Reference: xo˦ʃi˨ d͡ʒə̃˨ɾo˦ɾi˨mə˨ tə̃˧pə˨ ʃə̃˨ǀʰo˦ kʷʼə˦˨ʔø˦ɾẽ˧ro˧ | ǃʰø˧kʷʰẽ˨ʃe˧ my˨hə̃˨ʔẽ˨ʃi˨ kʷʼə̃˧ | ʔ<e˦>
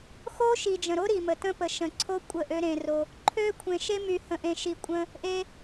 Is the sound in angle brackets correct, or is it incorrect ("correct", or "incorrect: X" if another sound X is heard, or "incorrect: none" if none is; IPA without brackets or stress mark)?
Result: incorrect: e˧